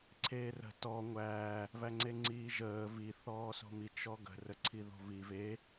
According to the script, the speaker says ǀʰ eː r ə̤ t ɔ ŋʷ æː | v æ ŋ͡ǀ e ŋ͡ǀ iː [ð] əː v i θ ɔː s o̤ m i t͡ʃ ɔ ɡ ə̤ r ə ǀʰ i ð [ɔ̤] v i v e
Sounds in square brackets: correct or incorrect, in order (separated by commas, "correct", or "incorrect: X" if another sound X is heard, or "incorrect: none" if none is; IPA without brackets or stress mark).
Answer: incorrect: ʒ, incorrect: o̤